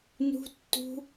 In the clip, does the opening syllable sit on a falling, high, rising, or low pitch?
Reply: high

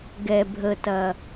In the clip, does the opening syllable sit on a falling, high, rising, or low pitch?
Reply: low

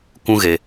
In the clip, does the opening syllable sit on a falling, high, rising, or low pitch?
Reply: high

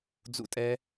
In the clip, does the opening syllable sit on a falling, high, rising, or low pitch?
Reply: high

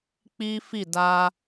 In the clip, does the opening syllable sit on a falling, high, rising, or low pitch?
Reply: high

